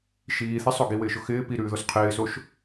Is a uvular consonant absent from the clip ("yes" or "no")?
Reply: no